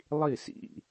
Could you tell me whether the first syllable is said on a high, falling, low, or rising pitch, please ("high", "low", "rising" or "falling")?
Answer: falling